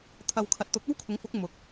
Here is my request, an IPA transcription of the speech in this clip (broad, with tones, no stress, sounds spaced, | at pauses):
t̪ʰ ɐ˨ w kʰ ɐ˨ t̚ t̪ ʊ˨˥ k̚ ɐ˥ w kʰ ʊ˨˥ ŋ f ʊ˨˥ k̚ m ʊ˨ k̚